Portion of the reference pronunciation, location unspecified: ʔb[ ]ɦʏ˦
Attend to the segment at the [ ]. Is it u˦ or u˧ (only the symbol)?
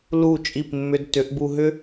u˧